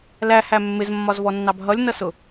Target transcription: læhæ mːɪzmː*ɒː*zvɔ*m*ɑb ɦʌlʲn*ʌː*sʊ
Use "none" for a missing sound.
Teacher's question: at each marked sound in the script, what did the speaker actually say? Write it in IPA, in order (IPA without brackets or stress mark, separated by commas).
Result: ɒ, nː, ʌ